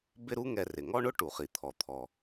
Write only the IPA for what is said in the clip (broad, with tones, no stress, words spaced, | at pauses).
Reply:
bɪ˥ɾu˥ŋɛ˧ rɪ˩ŋɔ˥ɳʊ˥ ʈu˩χi˩t̪ʰɔ˩t̪ʰɔ˩